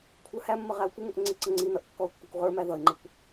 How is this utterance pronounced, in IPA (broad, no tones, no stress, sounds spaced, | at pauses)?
kʷʰ ə˞ h æ mː ə ʁ æ ʊ̯ kʷ ɪ ŋ ʊ ʔ ŋ͡ǀ ɪ ǀ ə ŋ͡ǀ i n ʌ ʔ kː ɔ ʊ̯ kː ʊ kʷ ʁ ə˞ m æ ð ʌ ɪ̯ ŋ͡ǃ ɪ kʷ